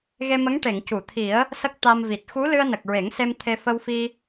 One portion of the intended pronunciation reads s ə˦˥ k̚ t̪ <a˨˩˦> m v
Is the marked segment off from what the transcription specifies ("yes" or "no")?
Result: yes